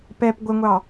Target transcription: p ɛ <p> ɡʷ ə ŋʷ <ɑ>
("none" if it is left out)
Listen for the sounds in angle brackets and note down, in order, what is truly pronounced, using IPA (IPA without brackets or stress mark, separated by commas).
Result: p, ɑ